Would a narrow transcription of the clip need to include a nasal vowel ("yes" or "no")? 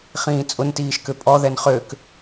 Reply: yes